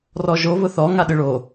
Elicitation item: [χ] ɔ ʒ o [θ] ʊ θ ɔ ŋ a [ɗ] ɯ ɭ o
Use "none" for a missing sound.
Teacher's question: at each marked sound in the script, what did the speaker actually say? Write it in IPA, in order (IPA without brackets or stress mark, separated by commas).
r, β, ɗ